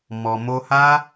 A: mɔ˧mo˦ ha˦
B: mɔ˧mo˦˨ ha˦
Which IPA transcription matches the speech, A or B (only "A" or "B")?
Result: A